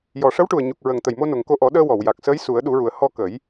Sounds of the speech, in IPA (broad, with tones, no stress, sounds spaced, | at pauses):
j ɔ˨˩ ʂ ə˧˥ w ʈ u˨˩ ə̯ ɲ u˨˩ k̚ ɹ ə˨˩ ŋ t̪ ə˨˩ j m o˧ n o˨˩ ŋ k o˧ ʔ ɔ˨˩˦ ɗ əː˧ w ɔ˨˩˨ w j a˨˩ k̚ s əː˧˥ j s u˨˩˦ ə̯ ɗ u˨˩˦ ɹ u˨˩ ə̯ h ɔ˧ k ə˨˩˦ j